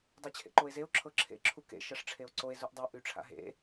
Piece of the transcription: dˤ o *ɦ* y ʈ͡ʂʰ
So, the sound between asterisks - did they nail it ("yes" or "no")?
no